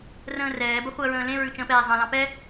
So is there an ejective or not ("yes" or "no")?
no